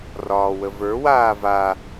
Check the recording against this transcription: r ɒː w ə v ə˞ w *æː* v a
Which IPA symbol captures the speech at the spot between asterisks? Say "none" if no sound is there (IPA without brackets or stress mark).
aː